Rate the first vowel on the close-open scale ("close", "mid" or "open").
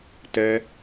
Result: mid